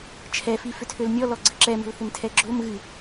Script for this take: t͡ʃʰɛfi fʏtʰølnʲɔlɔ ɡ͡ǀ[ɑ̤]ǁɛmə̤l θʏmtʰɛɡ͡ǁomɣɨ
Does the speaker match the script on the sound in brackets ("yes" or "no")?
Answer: no